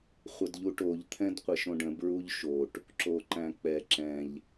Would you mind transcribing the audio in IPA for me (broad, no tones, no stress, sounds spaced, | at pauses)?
χʷ ə d ʎ u ʈ o ʎ t̪ʰ ɛ̃ d qʷ e ʃ õ ɖ ə̃ b ɹ u ʎ ʃ o ʈ | ǁ o ǃ æ̃ k͡p ɛ ǁ ɛ̃ ʎ